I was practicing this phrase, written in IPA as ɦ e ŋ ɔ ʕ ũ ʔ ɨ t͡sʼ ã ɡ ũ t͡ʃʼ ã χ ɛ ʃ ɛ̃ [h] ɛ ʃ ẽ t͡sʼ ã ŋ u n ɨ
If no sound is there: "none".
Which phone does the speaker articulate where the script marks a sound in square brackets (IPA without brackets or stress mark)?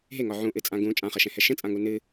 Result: h